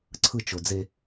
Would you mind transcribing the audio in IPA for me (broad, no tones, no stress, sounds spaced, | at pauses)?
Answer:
ǀʰ ɯ t͡ʃ o d͡z e